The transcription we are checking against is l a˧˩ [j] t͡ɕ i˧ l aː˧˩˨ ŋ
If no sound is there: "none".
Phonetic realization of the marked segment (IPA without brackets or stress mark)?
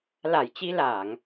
j